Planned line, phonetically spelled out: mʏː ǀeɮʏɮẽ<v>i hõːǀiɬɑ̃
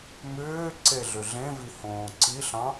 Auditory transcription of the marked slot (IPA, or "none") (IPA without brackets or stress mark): v